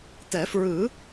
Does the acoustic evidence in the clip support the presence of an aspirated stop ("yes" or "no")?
no